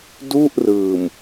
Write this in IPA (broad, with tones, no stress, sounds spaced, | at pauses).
d u˥˩ ʔ r ɯː˨˩ m